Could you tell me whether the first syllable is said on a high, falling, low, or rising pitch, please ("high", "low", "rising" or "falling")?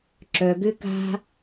low